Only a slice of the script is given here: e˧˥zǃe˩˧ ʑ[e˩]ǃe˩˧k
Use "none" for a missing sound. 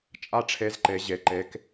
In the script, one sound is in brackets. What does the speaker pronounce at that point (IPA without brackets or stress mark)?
e˩